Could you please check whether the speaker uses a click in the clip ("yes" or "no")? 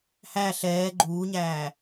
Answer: yes